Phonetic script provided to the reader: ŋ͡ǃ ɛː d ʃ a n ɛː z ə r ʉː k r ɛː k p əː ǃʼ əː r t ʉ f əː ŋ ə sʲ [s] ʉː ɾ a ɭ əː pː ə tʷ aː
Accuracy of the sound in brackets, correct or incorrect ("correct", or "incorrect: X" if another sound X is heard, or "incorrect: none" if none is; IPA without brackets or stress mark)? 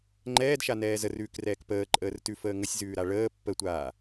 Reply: incorrect: z